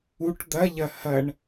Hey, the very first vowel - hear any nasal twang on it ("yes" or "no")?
no